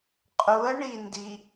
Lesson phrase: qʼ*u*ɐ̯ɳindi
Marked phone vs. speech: correct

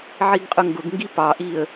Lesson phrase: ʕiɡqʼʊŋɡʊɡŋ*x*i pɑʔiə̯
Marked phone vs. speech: incorrect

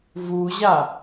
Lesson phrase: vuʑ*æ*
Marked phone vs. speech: incorrect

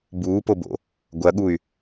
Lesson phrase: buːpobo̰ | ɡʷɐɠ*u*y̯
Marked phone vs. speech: correct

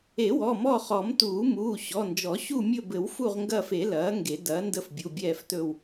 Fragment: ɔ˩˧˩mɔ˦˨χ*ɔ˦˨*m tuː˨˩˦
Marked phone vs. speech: incorrect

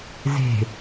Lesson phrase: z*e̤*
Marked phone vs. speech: correct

